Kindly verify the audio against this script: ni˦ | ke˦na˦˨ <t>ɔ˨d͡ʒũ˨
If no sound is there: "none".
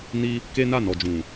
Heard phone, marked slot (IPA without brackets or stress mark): n